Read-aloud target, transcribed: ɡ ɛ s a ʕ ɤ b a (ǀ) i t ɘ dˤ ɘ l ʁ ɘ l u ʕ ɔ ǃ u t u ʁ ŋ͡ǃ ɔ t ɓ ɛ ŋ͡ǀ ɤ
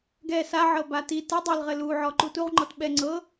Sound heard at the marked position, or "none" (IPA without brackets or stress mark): t